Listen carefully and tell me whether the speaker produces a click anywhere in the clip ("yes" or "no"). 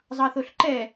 yes